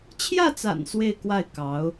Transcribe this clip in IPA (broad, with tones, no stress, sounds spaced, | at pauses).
t͡ɕʰ j ä˥˩ t͡s a̰˨˩ n s w e˥˧ ɪ̯ k w a˥˩ ɪ̯ k ɑ˧˥ ʊ̯